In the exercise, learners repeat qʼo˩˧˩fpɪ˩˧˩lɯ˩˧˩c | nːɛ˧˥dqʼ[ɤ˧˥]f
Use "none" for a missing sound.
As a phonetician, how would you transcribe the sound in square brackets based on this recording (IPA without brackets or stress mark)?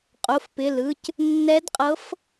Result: ɤ˧˥